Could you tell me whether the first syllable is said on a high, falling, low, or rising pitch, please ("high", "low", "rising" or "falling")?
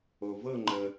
low